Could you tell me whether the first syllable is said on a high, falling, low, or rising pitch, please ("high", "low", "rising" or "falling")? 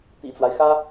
low